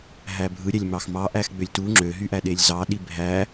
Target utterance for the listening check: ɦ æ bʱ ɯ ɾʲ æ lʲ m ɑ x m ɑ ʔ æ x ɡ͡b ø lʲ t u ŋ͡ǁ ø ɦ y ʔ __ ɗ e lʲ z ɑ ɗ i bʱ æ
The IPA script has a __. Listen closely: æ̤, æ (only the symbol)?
æ